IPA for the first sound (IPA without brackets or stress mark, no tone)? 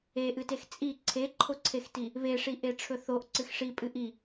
e